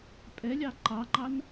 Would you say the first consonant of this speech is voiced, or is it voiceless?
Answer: voiceless